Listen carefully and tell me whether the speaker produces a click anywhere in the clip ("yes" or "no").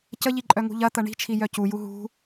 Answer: yes